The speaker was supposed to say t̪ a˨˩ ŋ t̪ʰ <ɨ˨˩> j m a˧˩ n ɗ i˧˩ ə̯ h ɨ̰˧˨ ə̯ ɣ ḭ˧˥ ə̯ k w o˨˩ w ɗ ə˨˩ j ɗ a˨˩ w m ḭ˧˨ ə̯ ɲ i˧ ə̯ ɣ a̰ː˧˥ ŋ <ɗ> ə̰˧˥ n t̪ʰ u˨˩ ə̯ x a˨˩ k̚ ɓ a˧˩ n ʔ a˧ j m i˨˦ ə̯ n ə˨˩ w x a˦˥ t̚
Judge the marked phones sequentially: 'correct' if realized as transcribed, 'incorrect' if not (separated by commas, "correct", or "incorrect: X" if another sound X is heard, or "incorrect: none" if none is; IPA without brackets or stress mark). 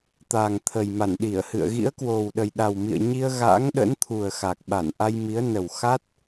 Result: incorrect: ə˨˩, correct